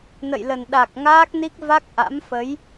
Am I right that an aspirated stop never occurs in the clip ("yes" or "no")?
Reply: yes